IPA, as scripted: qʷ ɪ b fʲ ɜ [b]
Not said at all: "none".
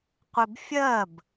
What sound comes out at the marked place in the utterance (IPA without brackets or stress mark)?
b